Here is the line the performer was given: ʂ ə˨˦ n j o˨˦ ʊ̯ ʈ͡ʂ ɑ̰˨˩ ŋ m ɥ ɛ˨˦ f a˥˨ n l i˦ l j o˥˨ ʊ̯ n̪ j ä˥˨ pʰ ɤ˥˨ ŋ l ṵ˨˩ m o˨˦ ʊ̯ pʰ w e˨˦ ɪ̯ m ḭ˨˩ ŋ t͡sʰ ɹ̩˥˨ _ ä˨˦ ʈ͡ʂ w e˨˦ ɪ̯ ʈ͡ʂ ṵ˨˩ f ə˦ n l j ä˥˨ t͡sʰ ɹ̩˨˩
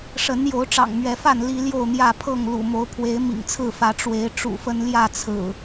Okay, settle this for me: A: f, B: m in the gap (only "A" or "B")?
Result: A